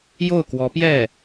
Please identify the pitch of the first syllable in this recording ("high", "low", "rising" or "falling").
falling